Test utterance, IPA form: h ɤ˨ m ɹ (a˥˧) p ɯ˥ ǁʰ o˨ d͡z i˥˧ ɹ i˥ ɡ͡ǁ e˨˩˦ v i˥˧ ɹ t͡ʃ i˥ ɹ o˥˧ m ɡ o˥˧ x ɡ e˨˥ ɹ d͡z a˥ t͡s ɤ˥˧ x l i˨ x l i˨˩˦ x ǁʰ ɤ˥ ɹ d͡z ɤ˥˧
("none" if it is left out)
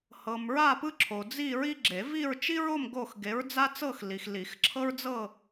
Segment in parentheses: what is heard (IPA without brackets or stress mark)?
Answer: a˥˧